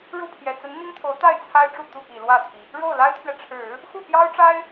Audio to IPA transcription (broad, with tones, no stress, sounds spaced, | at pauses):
ɻ u˥˩ pʰ j ɛ˨˩ t͡s ə˧˥ n n̪ i˥ ŋ t̪ʰ o˧˥ ʊ̯ t̪ a˥˩ ɪ̯ t͡sʰ a˥ ɪ̯ ʈ͡ʂ u˥˧ t̪ u˥˩ p i˨˩ l w ä˥˩ t̪ʰ i˩ | ɻ o˥˩ ʊ̯ l a˥ ɪ̯ t̪ʰ ɥ ɛ˨ ʈ͡ʂʰ ɻ̩˨˩˦ | x u˥˩ p j ɑ˥ ʊ̯ ʈ͡ʂ a˥ ɪ̯